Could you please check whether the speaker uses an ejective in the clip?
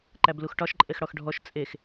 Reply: yes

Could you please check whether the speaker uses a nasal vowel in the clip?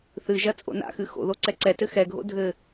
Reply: no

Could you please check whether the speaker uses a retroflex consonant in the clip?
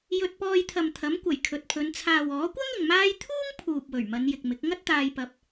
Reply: no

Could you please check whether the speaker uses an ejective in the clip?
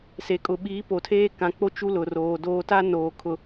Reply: yes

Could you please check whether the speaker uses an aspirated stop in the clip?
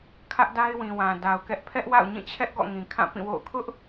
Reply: yes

